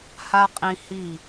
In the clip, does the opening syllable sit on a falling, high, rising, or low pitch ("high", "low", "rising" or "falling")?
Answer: high